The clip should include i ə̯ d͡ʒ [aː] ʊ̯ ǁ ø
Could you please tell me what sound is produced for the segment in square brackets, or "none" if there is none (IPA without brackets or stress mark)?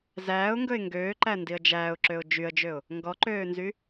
æː